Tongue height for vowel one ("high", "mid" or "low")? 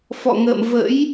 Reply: mid